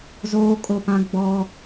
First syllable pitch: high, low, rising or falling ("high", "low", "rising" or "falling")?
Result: high